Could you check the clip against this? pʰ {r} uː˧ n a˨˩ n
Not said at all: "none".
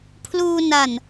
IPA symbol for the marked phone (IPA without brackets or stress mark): l